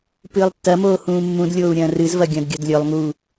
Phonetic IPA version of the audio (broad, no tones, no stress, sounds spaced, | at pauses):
p ɨː lˠ tː ɐ m oː h ũː mː ũ d lʲ oː u̯ ɾʲ ɐ̃ː r ɨ z v ɐ ɡʲ ɐ̃ d ɡʲ ɐ d lʲ ɵ lˠ ŋ u